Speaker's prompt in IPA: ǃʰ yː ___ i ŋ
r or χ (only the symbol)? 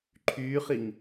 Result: χ